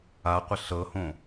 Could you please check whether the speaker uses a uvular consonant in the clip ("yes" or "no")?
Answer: yes